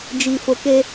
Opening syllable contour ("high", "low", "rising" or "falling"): low